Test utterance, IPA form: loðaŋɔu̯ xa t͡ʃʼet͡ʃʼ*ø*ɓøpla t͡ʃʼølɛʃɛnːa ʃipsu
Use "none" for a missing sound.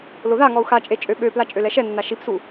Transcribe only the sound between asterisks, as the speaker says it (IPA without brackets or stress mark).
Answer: ø